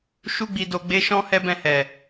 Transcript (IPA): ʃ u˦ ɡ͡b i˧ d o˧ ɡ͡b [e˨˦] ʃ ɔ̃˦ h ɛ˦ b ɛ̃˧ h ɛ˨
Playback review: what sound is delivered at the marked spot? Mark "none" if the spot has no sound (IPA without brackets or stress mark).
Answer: e˦